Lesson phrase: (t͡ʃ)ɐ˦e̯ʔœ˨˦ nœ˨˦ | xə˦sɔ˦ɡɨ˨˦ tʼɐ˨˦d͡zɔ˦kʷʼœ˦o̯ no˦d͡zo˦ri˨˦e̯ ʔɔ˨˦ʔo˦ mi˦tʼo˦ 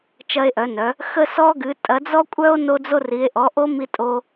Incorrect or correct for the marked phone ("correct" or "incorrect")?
correct